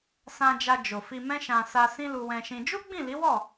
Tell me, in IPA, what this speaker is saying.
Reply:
s ã˧ d͡ʒ a˧ d͡ʒ o˨ f i˧ m ɛ̃˦ ʃ ã˧ s a˧ s ĩ˦ l u˧ w ɛ̃˧ ʃ ĩ˧ d͡ʒ u˦ ɡ͡b ĩ˦˨ l i˨˦ w ɔ˦˨

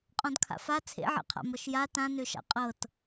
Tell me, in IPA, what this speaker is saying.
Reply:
qʼ ɔ̃ d kʰ a̰ f a t͡sʰ ḛ ʕ ḛ qʰ a̰ m ɤ ʃ j a t ã n ø ʃ a̰ qʼ ɤ t

